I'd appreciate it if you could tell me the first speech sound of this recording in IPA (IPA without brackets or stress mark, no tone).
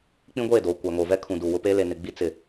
k͡p